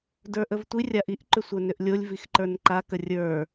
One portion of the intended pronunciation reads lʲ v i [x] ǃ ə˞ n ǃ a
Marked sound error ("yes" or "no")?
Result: no